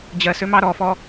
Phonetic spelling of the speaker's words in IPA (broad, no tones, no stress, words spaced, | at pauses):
d͡ʑɜsømɑ ɾɔfɔ